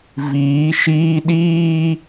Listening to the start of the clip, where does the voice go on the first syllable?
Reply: rising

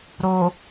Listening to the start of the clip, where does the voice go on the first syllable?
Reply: low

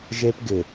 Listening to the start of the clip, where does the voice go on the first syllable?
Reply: high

